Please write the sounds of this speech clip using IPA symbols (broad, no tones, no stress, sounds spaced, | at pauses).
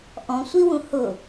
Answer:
ʔ ɔ̃ sʷ i w ũ h ʊ